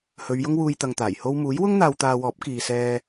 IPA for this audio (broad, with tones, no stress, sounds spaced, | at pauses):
h ɵ˨˧ ɥ j ʊ˥ ŋ w uː˧ j t̪ ɐ˧ ŋ t̪ aː˨˩ j h o˥ w m uː˨˥ j w ʊ˥ ŋ n̪ aː˧ w t̪ aː˧ w ɔː˨˥ p̚ k iː˨ s ɛː˧